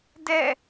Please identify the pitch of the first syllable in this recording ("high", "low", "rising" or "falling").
falling